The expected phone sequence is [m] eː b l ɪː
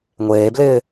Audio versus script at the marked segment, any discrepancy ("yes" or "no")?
yes